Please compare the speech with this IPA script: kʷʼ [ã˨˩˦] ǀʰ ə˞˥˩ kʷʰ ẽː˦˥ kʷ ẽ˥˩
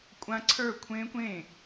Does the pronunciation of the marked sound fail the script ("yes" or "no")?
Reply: yes